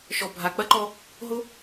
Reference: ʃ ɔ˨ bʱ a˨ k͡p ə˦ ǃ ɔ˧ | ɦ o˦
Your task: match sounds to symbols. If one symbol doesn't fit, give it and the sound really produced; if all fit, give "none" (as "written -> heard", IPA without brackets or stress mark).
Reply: ə˦ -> ɐ˦